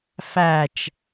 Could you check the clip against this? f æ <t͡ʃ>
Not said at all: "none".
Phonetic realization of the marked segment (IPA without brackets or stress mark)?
t͡ʃ